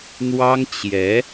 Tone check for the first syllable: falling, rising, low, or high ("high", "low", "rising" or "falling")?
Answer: high